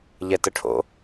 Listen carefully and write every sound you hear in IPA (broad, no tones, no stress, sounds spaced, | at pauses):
ʎ ɛ t ə ʈʰ o̰